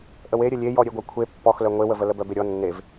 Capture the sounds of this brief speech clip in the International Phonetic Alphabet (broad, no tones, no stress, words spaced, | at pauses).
ʔəweɾʲə lʲejɔ ɾʲeɡʷœkʷʰe pːɔxlœ ŋʷewəvə ləbœbeɾʲɔ nːev